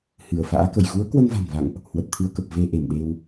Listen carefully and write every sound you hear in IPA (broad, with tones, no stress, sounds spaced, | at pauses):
h ɨ˧˩ ə̯ f a̰ː˧˥ k ə̰˧˨ j ɣ u˨˦ ə̯ k w ə˧ n v a̤˨˩ n v a̰˧˨ ŋ ʔ | h w ə˨˩ t̚ t̪ʰ ɨ˧ ə̯ k ə˨˩ p̚ v e˧ ʔ e˧˩ m ɗ e˧ w